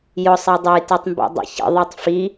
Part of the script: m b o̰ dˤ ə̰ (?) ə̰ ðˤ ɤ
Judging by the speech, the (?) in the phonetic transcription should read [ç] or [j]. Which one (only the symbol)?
ç